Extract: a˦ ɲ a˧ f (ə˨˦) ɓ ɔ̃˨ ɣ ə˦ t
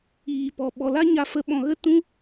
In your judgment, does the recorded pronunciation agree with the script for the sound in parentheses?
yes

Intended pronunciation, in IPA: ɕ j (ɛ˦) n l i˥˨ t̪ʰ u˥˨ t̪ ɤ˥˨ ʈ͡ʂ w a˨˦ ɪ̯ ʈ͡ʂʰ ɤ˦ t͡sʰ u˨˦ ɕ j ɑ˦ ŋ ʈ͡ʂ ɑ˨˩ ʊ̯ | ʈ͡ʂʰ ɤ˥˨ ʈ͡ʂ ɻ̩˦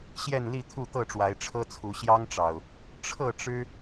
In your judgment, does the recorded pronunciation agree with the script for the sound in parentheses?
no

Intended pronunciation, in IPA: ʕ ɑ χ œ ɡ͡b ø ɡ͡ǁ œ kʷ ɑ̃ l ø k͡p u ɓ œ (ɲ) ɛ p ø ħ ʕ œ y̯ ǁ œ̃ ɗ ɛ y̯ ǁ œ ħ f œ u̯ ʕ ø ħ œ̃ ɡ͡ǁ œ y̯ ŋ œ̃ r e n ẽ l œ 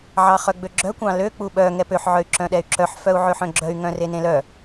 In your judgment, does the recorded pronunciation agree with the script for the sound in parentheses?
no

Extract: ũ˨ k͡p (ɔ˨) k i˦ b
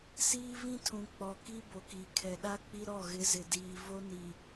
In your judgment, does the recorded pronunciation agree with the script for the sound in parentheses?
yes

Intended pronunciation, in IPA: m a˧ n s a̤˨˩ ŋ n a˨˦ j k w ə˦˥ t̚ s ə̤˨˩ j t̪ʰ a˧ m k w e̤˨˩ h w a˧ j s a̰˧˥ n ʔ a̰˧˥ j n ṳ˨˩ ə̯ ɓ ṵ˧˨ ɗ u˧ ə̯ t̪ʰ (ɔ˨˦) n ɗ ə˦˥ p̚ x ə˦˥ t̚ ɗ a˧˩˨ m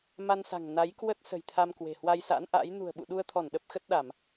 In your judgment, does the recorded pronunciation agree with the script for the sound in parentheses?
no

